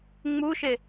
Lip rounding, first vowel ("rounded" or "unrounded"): rounded